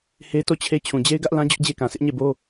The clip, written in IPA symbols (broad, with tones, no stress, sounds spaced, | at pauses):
h e˦ t o˦˨ t͡ɕʰ e˦ t͡ɕʰ ũ˨ d͡ʑ e˦ ɪ̯ ɡ ä˦ ʔ l ã˦ d͡ʑ ʊ˦ ʔ d͡ʑ e˦ k ã˨ sʰ ɪ˦ ʔ ɲ e˦˨ b o˦